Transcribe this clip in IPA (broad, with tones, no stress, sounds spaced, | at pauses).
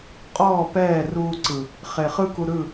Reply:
qʼ ɔː˦˨ p ɛː˦˨ r uː˧ ǀ ɯ˨ | χ e˨ χ ɯ˦ k u˧ ɾ ɯ˦˨